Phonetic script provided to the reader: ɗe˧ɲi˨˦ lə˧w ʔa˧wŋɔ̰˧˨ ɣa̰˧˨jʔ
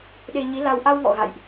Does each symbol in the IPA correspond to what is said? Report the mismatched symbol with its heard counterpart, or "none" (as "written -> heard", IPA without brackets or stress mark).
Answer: ə˧ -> a˧